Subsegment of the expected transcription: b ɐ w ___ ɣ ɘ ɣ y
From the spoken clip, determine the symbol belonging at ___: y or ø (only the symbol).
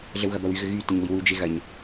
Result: y